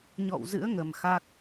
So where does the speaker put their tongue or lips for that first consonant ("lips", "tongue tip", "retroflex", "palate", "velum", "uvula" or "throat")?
palate